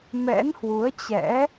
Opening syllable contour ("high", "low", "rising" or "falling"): rising